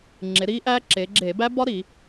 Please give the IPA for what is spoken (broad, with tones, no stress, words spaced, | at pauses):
ŋ͡ǁe˩˧ ɾiː˦˥ʔæː˦˥ ǁeː˩˧ɡ͡ǁeː˧˩˧bæ˦˥ bɒ˦˥ɾi˧˩˧